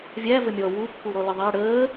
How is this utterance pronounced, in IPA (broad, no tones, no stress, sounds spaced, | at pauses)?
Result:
vʲ æ v ə mʲ ɔ w u kː u ɾ ɔ l ɪ ðˤ æ ɽ əː